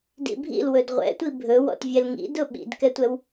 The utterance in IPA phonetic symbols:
d ḭ bʱ ḭ l w ɵ d ʁʷ ɛ̰ tʷ i bʱ ɵ w ɔ̰ t vʲ ɛ l ŋ ḭ d ʊ ɓ ḭ d k ɛ tʷ ɛ w

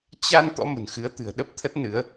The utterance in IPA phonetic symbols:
t͡ɕ a˧ n t̪ ɔ̰˧˥ m ə̤˨˩ n x ɨ˨˦ ə̯ t̪ ɨ̤˨˩ ə̯ ɗ ə˦˥ p̚ t̪ʰ ə˦˥ t̚ n ɨ˨˦ ə̯

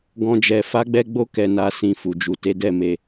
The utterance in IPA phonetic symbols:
ɡ ɔ̃˦ d͡ʒ ɛ˧ f a˦ ɡ͡b ɛ˦ ɡ͡b o˦ k ɛ˧ n a˧ s ĩ˧ f u˨ d͡ʒ u˨ t e˨˦ d ɛ˦˨ m e˧

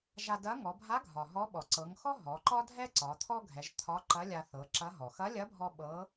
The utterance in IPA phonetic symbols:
ʒ a˧ d ɐ˧˥ ŋ ɔ˩˧ bʱ a˧˥ ɡʱ ɒ˩ ɦ ɔ˧˥ ɓ ɔ˩ ǀ ɤ˩˧ ŋ x ɔ˥ ɦ ɔ˩˧ ǃ ɒ˥ dʱ ɛ˥ ǀ ɒ˩˧ t̪ʰ ɔ˥ ɡʱ ɛ˩˧ ʒ t̪ʰ ɒ˧˥ ǃ ɐ˧˥ lʲ a˧ θ ɤ˩˧ ǁ ɐ˧˥ ɦ ɔ˩ x ɐ˧˥ lʲ ɐ˧˥ bʱ ɔ˧ ɓ ɤ˧˥

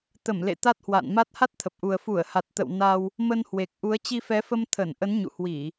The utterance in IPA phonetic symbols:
t̪ ə˧˩ m l ḛ˧˨ t̪ a˦˥ t̚ h w a̰ː˧˨ n m a˦˥ t̚ h a˦˥ t̚ t̪ʰ ə˨˩ p̚ ʔ u˨˩ ə̯ f u˧˩ ə̯ h a˨˩ t̚ t̪ ə̰˧˨ w n a˧ w | m ə˧ n h w e˨˩ k̚ ʔ u˨˦ ə̯ t͡ɕ i˧ f ɛ˨˦ f ə˧ m t̪ʰ ə˧˩ n ʔ ə˨˦ n ɲ ṵ˧˨ h w i˧˩˨

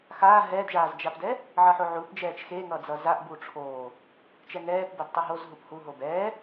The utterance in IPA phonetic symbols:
x aː ɦ ɛː d ʒ aː z d͡ʒ a p d ɛ | ʕ ʌ ħ o ʕ u p d͡ʒ ɛː t͡ʃ x e ŋ ʌ d͡z ʌ z a ʔ b u ʈ͡ʂʰ oː | t͡ʃ ɛ ŋ ɛː p b ɛ d tˤ u ɦ o z ɦ u p h u ɦ o b ɛː

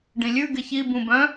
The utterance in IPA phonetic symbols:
ɖ ĩ lʲ ʉ ɡ ɪ ç i b ũ b œ̃

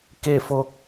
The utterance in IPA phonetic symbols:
k e˥˨ f o˧ k̚

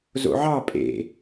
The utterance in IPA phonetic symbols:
z o̰ ʕ ɑ pʼ ḛ

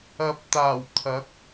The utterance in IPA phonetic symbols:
ɐ˨ p̚ t̪ aː˨˩ w t̪ʰ ɐ˨˥ k̚

